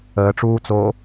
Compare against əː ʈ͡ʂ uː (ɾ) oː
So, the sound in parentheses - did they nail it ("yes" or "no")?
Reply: no